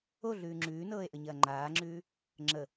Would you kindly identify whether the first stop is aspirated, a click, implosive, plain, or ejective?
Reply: click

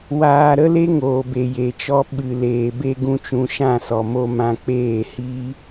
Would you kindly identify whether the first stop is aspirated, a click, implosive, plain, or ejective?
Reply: plain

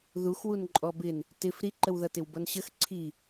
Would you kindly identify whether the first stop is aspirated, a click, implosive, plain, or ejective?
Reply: click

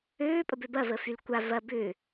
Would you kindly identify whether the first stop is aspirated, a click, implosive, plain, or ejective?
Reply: ejective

